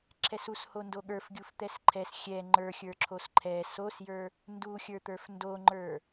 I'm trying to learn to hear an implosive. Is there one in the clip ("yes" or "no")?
yes